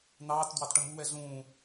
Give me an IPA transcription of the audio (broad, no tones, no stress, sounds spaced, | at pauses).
n̪ ɑː t d w ɑ t ʈ ʌ m u w ɛ ɮ ũː